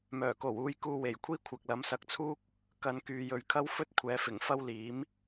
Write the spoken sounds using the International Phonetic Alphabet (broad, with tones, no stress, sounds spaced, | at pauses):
m œː˨˩ k o˨˩ w uː˧ j k uː˧ w e˨˩ j kʷʰ iː˥ kʷʰ ɐ˨ k̚ l ɐ˨˧ m s ɐ˧ k̚ t͡sʰ uː˥ k̚ | k ɐ˨ n k yː˨ j ɵ˨ ɥ kʰ ɐ˥ w f ɵ˥ t̚ kʷʰ ɛː˨˧ f ɪ˨˩ ŋ f ɐ˥ w l iː˨˥ m